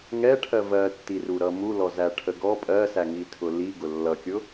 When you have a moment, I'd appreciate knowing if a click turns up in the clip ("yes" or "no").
no